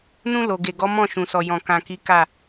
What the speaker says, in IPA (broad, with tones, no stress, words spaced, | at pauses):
nũ˧ lo˨ɡe˨ ɡɔ˨˦ mɔ̃˦˨ʃũ˨sɔ˨ jɔ̃˨ kã˨ki˨˦ ka˦˨